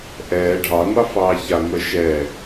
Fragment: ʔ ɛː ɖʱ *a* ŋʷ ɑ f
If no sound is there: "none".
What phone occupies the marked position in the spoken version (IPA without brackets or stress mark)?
ɑ